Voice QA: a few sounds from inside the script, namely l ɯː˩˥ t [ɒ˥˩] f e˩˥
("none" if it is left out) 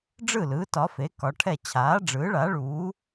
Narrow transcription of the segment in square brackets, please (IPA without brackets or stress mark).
ɒ˩˥